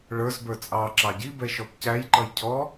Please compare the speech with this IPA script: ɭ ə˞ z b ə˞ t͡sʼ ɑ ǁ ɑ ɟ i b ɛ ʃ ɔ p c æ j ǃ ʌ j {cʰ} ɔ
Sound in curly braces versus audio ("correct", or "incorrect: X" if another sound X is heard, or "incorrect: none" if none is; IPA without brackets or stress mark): correct